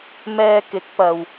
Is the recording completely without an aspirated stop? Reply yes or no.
yes